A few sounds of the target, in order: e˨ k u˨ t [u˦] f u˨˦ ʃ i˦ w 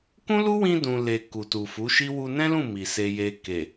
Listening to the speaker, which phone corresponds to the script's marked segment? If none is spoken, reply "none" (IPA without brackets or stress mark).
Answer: u˨